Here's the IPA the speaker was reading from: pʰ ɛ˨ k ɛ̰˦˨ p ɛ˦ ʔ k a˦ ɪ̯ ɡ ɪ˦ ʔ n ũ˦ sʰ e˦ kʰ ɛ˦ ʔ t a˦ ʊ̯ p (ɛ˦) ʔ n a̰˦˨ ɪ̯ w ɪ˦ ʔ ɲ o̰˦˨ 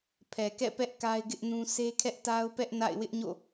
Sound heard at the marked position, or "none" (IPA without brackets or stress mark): ɛ˦